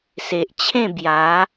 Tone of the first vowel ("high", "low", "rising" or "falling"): low